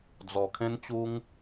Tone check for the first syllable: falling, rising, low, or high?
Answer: low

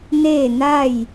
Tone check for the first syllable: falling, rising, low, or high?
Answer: falling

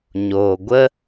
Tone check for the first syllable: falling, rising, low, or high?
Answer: low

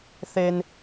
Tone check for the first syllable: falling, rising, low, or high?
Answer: high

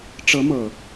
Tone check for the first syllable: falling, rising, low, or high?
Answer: rising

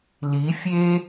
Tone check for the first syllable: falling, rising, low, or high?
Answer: rising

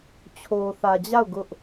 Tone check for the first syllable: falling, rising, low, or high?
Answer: low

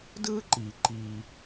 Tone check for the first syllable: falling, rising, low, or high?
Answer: high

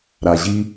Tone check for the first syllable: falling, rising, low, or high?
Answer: low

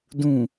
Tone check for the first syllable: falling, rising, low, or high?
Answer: low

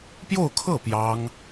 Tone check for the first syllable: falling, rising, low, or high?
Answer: falling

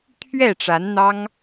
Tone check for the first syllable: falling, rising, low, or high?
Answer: falling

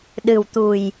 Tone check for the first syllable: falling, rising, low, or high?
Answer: low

